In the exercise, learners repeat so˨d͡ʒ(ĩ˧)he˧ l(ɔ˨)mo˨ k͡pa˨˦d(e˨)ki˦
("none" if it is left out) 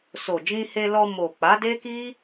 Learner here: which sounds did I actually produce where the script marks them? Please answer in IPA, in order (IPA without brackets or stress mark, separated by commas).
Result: ĩ˧, ɔ˧, e˦